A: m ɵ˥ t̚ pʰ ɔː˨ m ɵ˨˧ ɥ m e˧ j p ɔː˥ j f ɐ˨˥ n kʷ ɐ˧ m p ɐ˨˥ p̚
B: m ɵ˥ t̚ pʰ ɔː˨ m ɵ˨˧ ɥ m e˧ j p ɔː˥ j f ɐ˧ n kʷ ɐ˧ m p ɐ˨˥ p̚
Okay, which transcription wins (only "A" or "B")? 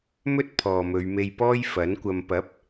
A